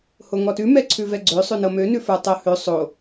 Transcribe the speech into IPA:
h o ŋ ɔ t ʉ m ɛ ǀʰ ʉ v ɛ ɡ͡ǀ ø sˤ ʉ n ɤ m ø n ʉ f ə˞ tˤ o h ø sˤ o

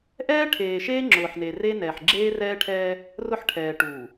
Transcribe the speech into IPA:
ʔ ɛː˦ ʈʰ eː˨ ʃ eː˦ ŋ͡ǁ ʊː˨ ħ n e˨ r e˦ n ɛː˨ ħ ɡ͡ǁ eː˦ r ɛː˦ ʈʰ ɛː˦ | r ʊ˦ ħ ʈʰ ɛː˨ ʈ uː˨

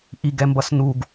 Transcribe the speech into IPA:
ʔ i ɡ ɛ m b ʌ s n u ɡ

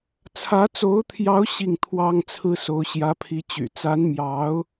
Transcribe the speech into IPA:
t͡sʰ ä˧˥ t͡s o˧˥ ʊ̯ t̪ʰ j ɑ˧˥ ʊ̯ ɕ i˥˩ ŋ t̪ʰ w ɑ˥ ŋ t͡sʰ ɹ̩˥ s o˧˥ ʊ̯ ɕ j ä˧˥ pʰ i˧˥ t͡ɕ y̰˨˩ t͡s a˧˥ n m j ɑ˧˥ ʊ̯

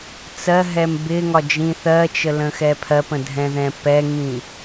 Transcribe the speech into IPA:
t͡s ɜ ɦ ɛ m b ɪ ŋ ɒ d͡ʒ ĩ θ ɜ t͡ʃ ə l ə̃ x ɛ pʰ ɜ p ə̃ dʱ ɛ̃ ð ɛ̃ p ɛ ŋ ĩ

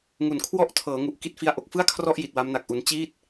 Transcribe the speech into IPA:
ŋ u˨˩ n kʰ w ɔ˥˩ ʔ tʰ ɤː˩˦ ŋ u˨˩ ʔ k i˦˥ t̚ f i˦˥ a̯ ʔ o˨˩ k̚ f ɯ˥˩ a̯ kʰ r ɔ˥˩ ʔ j i˨˩ t̚ w a˦˥ m n a˨˩ k̚ ʔ u˧ n t͡ɕ iː˥˩ t̚

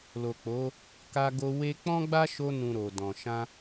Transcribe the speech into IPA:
l o˨ k͡p o˨˦ | k a˧ ɡ o˧ w e˦ k͡p ɔ̃˦ ɡ͡b a˦ ʃ o˧ n ũ˨ ɾ o˨ d ɔ̃˨ ʃ ã˧

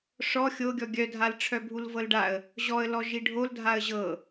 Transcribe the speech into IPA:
ʂ ɔ xʲ o ɡʲ ɔ ɡʲ œ dʱ a l ʈ͡ʂʰ œ bʱ u l v ɤ l ɖ a ə̯ | ʑ ɔ ə̯ l ɔ ʒ i ɖʱ o l dʱ a ə̯ ʑ ɤ

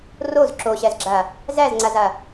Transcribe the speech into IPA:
r o z ǁ o ɕ æ z ɡ͡ǁ a | z æ z ŋ͡ǀ a z a

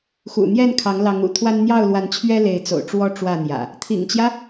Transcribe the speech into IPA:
x ṵ˨˩ n̪ j ɛ˥˨ n kʰ ɑ˨˦ ŋ l ɑ˨˦ ŋ ṵ˨˩ t̪ʰ w a˦ n n̪ j ɑ˥˨ ʊ̯ l w a˨˦ n t͡ɕʰ ɥ ɛ˦ l e˨˦ ɪ̯ t͡s o̰˨˩ ʊ̯ ʈ͡ʂ w ɔ˦ ʈ͡ʂ w ä˥˨ n̪ j ä̰˨˩ | t̪ʰ ḭ˨˩ ŋ t͡ɕ j ä˦

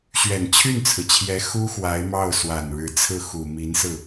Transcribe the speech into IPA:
ɕ ɥ ɛ˨˩ n t͡ɕʰ y˥˩ n t͡sʰ ɹ̩˩ t͡ɕʰ j ɛ˧˥ x u˥ x w a˧˥ ɪ̯ m ɑ˥˩ ʊ̯ s w a˨˩ n ɻ ɻ̩˧˥ t͡sʰ ɹ̩˥˩ x u˨˩ m i˧˥ n s ɹ̩˥˩

